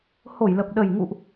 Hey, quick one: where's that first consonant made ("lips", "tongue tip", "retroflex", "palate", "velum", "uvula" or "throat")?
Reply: throat